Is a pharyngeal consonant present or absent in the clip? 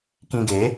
absent